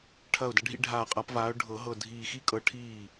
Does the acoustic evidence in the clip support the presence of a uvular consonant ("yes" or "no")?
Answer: yes